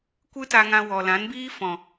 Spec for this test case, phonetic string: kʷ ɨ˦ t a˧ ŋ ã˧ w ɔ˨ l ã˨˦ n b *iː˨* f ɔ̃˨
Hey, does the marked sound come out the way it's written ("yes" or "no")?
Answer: no